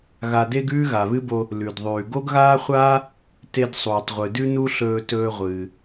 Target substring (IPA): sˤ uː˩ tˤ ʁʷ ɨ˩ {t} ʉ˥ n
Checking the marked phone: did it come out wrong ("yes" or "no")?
yes